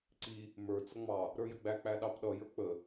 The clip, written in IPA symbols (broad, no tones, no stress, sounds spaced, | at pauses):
ǀ i | m ə˞ t͡s ʌ ŋ͡m ɑ | ɾ ə˞ j ə ɡ͡b æ k͡p æ ɗ ɑ p ɗ ʌ j ə˞ k͡p ə